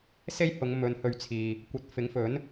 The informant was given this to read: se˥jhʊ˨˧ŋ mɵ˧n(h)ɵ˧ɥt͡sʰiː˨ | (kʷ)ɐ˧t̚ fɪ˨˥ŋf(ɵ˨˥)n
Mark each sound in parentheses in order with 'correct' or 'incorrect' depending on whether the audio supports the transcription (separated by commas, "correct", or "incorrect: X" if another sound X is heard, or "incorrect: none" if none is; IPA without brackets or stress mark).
correct, correct, correct